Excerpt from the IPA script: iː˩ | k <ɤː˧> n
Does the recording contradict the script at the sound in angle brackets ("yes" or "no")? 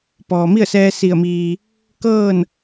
yes